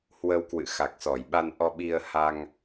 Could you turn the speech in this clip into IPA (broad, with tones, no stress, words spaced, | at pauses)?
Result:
hwə˧wkwɨ̰˧˨ xa˨˩k̚sɔ˧˩jɓa˧n ʔɔ˧ɓi˧ə̯ha˧ŋ